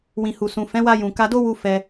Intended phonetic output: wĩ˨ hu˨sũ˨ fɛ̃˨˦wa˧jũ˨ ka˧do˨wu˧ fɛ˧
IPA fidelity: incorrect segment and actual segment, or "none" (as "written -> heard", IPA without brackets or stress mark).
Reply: o˨ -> o˦